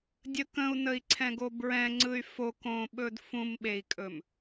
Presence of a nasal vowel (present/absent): present